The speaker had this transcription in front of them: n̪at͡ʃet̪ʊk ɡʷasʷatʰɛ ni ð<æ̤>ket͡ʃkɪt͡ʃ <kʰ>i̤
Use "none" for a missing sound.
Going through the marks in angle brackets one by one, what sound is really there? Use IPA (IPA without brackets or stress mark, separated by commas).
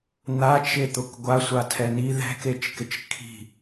ɛ̤, kʰ